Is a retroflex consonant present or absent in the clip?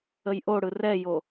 present